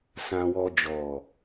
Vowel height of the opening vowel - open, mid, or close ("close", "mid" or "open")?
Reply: open